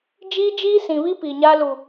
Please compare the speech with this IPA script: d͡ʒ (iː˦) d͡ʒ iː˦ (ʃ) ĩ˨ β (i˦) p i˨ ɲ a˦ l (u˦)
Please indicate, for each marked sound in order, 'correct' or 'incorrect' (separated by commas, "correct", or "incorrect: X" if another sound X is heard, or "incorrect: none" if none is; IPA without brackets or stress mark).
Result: correct, incorrect: s, correct, incorrect: u˨